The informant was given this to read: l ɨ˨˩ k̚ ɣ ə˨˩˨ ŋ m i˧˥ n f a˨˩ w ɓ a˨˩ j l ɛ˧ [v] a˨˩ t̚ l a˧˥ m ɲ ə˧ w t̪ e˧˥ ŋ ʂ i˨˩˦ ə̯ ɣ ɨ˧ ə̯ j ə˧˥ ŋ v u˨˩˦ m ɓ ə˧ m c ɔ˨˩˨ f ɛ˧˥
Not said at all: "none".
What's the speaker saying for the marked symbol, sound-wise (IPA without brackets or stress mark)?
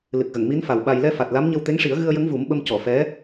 f